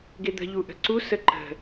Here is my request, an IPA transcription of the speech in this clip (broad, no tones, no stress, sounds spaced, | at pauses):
ɡ e d̪ ə̤ ʎ u ʔ ə̤ ǀ u s ə ǃ ə̤